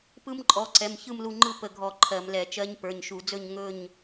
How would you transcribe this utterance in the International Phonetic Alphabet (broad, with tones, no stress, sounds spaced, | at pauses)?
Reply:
p ɯ˦˥ m ǃʼ ɔ˩˧˩ ǀ ɛ˩˧˩ m ç ɯ˥˨ m l u˧ ŋ͡ǃ ɯ˥˨ p ə˧˩ ɡʱ ɔ˧˩˧ ǃʰ ɜ˧˩˧ m l ɛ˧˩˧ t͡ʃ ɜ˦˥ ɲ p ə˞˩˧˩ ɲ ʃ u˧˩˧ d͡z ɵ˥˨ ɲ ŋ ɵ˥˨ ɲ